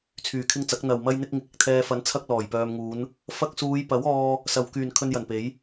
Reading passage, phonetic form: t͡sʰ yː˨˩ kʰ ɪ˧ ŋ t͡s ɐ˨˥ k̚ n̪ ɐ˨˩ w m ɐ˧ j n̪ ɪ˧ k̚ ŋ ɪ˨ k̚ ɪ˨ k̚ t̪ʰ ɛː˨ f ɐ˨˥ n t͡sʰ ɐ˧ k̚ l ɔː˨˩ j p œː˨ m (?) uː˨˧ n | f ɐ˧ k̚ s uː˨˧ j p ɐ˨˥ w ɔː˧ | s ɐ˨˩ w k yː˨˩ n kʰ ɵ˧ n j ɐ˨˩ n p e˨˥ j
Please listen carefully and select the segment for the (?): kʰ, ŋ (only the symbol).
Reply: ŋ